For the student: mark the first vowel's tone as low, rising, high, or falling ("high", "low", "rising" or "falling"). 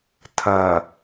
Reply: low